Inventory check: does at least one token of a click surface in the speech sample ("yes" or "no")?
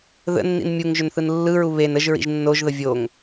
no